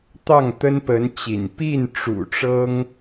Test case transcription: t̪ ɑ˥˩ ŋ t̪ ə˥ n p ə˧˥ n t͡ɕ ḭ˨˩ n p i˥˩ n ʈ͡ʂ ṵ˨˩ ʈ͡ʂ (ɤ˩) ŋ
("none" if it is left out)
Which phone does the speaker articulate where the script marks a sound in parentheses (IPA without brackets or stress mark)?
ɤ˥